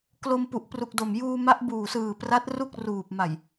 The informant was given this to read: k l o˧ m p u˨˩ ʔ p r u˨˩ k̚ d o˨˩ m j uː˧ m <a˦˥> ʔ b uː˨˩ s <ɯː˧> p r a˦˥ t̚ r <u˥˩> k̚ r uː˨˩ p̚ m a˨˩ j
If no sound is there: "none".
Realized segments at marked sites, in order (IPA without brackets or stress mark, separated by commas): a˦˥, ɯː˨˩, u˥˩